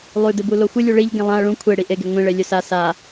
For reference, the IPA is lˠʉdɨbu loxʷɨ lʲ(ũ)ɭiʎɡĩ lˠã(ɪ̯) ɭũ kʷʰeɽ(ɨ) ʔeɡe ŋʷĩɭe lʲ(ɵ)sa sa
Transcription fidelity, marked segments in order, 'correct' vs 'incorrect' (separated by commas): incorrect, incorrect, incorrect, correct